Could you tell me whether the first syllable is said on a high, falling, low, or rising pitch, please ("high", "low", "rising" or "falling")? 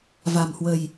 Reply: low